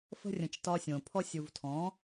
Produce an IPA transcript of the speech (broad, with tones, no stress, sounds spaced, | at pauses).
f ə̤˧ rʲ ə̃˨ t͡ʃ t ɒ˧ sʲ õ˨ pʰ ɔ˧ sʲ u˨ v tʰ ɔ̃˨˦